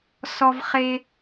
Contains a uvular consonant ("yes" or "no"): yes